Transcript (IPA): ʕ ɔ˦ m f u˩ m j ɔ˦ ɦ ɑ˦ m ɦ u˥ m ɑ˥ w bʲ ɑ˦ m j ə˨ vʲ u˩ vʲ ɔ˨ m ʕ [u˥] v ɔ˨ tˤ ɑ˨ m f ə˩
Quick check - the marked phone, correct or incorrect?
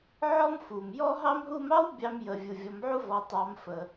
correct